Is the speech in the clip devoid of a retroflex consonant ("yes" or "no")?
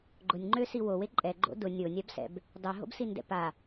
yes